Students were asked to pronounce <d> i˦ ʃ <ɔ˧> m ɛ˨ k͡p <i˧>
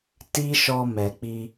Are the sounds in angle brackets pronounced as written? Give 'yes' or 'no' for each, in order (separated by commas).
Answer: no, yes, yes